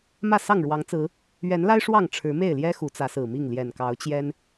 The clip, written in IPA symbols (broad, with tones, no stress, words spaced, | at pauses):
mä˥˨sɑ˥˨ŋɻwɑ˨˦ŋt͡sɹ̩˨˦ | ɥɛ˨˦nla˦ɪ̯ ʂwɑ˥˨ŋ ʈ͡ʂʰɻ̩˨˦me˥˨ɪ̯ljɛ˦ xu˨˦t͡sä˨˦sɹ̩˨˩mi˥˨ŋ ljɛ˨˩nkɑ˨˦ʊ̯t͡ɕjɛ˦n